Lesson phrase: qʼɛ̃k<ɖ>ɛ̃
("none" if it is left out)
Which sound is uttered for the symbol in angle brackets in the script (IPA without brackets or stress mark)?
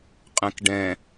ɖ